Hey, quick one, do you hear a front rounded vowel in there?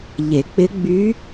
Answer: yes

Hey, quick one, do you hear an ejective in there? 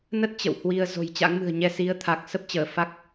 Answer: no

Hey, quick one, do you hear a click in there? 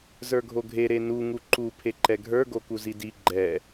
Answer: yes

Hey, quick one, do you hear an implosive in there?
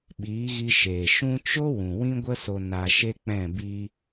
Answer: yes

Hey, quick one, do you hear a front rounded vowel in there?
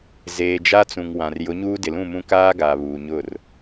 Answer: no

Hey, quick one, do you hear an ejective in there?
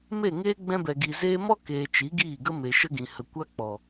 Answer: no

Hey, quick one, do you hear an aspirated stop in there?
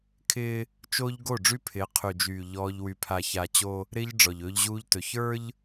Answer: yes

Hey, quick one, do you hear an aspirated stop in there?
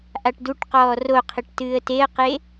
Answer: yes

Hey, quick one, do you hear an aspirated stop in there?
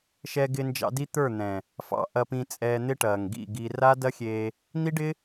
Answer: no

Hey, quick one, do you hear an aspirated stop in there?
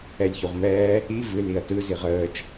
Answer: no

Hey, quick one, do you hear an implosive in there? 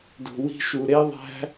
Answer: no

